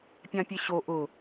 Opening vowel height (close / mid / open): open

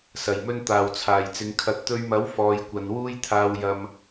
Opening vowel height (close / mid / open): open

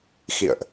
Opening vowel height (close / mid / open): close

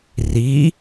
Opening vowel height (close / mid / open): close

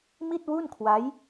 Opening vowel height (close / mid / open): close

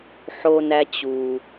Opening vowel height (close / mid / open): mid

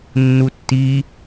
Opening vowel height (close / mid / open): close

